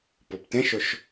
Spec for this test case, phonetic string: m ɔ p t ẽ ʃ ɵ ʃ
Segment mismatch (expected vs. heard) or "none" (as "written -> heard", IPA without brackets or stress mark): m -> p